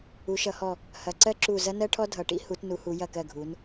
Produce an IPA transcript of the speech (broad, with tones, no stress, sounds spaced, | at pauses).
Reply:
u˩˧ ʃ ʌ˩˧ h ɔ˧˩ | h ɐ˩˧ ǀ ɜ˥ ǁ u˧˩ z ɐ˥ n ɜ˥ ʈʰ ɔ˥ dʱ ʌ˩˧ ʈ ḭ˥ h u˩˧ t n u˩˧ h u˩˧ j ɐ˧˩ k ɜ˧˩ ɡʱ u˩˧ n